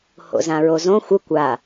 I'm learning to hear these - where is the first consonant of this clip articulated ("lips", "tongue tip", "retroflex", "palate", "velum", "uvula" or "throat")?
throat